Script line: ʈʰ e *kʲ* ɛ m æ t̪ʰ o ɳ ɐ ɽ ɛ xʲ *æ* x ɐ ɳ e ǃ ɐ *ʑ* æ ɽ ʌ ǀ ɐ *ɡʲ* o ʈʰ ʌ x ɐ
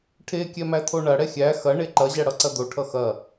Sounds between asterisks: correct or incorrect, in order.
correct, correct, correct, incorrect

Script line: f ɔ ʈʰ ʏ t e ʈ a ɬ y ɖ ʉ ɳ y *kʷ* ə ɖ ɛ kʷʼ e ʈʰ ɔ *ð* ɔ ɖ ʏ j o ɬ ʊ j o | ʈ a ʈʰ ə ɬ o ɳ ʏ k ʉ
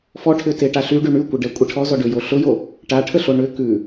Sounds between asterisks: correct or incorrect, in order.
correct, incorrect

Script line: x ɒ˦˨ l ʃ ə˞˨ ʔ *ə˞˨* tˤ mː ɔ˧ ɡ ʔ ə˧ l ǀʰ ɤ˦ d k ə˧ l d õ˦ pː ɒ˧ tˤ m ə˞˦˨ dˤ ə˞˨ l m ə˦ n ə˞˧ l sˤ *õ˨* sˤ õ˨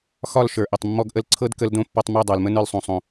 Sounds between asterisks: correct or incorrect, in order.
incorrect, correct

